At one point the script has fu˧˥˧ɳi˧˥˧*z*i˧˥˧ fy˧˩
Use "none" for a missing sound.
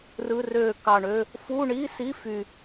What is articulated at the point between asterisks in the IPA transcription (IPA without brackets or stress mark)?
s